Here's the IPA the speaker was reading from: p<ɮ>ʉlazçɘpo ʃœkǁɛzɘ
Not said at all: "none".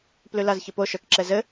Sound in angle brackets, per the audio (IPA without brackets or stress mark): l